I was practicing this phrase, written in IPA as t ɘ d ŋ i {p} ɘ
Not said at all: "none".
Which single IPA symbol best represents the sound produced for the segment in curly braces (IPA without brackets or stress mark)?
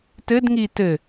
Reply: t